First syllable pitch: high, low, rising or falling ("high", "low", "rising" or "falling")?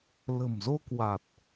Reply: low